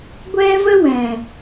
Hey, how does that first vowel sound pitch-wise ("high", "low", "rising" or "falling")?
high